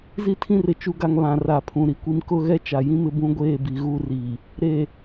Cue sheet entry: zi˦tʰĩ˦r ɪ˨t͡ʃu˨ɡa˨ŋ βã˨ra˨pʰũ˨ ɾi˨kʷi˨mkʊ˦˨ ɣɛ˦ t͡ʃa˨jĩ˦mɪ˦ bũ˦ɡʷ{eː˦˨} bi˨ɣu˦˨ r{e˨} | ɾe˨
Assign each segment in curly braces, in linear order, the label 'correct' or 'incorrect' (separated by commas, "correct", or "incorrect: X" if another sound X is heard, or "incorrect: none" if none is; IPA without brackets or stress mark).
correct, incorrect: i˨